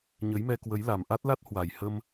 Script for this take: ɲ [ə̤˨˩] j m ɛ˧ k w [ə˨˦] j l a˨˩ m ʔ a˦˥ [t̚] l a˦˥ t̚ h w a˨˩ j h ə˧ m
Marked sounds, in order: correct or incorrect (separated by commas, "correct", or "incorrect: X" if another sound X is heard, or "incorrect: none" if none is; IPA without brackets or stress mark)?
incorrect: ə˨˦, correct, correct